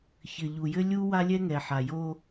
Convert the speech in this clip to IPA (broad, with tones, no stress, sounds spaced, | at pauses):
ç ɘ˨ ʎ u˨ j ɘ˦ lʲ u˦ w a˦ lʲ ɛ˦ ŋ ɛ˨ ħ a˨ j o˦